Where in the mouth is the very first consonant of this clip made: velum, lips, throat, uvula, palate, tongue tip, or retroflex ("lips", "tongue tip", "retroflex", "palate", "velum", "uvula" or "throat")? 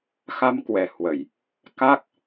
velum